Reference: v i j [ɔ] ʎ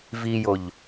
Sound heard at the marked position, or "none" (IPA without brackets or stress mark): o